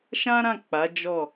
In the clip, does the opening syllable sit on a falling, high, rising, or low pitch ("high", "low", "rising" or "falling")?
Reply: high